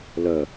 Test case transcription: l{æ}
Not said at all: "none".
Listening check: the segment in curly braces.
ɜ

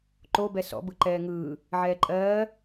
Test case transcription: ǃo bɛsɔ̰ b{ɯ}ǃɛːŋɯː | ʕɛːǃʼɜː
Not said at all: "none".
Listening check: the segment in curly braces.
ɯ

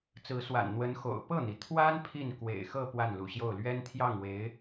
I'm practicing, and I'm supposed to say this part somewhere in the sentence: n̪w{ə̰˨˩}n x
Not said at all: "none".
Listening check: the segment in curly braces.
ə˧˥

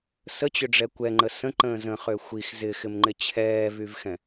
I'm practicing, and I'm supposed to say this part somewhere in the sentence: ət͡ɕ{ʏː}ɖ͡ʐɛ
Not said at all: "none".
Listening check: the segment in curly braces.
ʏ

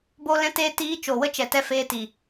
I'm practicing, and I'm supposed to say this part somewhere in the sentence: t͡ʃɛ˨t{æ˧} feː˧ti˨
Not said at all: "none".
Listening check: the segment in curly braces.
ɛ˧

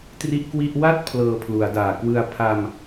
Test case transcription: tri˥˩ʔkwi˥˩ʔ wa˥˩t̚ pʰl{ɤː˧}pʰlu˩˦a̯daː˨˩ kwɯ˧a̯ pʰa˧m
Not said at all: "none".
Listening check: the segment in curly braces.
ɤː˧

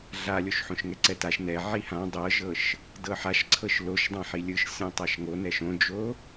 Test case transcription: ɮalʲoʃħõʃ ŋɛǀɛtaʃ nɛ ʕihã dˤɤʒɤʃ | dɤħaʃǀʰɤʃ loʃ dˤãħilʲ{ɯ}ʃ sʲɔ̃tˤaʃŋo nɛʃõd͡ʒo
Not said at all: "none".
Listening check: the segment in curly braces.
ɯ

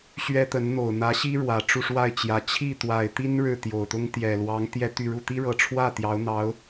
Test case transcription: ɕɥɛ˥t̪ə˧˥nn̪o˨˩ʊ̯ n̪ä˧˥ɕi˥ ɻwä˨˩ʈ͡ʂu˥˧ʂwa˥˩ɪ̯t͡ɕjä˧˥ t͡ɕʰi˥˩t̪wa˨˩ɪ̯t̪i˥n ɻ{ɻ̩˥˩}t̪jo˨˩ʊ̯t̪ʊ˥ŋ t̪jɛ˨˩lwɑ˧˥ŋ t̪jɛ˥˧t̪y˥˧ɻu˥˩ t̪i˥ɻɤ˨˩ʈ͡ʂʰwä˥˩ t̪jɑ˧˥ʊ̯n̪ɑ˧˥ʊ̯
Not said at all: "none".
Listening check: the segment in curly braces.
ɻ̩˥˩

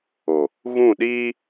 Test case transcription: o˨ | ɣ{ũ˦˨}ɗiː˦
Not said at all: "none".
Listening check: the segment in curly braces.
ũ˦˨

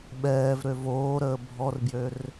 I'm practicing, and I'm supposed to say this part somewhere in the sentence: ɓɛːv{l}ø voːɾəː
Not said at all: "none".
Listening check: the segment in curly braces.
ɾ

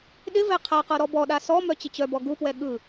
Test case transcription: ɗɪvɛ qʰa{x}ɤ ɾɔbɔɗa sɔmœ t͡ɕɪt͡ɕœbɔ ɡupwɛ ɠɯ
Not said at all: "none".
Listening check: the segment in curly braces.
q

